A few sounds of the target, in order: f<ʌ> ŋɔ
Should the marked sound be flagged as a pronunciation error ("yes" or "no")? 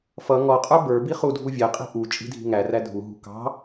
no